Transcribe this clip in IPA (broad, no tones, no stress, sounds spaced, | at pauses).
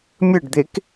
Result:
mʲ ɘ ɖ d̪ e k